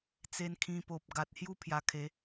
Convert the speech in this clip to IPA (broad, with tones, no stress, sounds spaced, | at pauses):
t͡s e˧ n kʰ ĩ˧ p o˨ p̚ ɡ a˨ t̚ h j u˦ pʰ j a˧ kʰ e˨˦